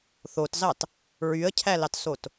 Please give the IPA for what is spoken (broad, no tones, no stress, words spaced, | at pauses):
θotzɑt | ɹyə̯cʰælɑtsot